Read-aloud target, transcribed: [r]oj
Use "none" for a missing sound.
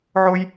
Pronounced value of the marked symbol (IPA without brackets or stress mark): ʕ